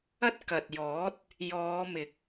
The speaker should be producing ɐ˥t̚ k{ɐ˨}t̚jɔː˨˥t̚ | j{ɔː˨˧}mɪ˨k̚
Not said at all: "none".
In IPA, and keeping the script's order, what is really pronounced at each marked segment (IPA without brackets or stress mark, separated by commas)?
ɐ˨, ɔː˨˧